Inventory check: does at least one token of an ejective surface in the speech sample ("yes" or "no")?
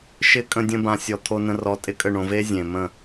yes